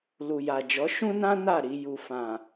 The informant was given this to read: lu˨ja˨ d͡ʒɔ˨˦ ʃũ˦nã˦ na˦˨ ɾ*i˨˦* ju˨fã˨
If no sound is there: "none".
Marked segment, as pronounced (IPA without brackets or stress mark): i˧